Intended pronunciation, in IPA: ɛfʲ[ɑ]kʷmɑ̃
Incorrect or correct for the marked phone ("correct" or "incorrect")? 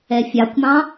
correct